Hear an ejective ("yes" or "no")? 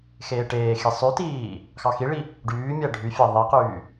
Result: no